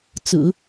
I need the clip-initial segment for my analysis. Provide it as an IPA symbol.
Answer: t͡s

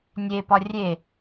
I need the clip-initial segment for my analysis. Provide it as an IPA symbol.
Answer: nʲ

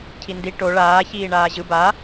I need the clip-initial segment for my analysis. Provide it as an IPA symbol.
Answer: cʰ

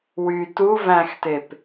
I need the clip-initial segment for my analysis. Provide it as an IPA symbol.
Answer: w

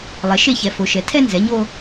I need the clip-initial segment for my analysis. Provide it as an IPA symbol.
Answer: lˠ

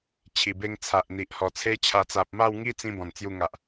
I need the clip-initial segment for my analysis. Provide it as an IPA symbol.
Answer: t͡ɕʰ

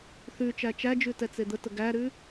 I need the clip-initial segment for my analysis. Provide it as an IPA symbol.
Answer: θ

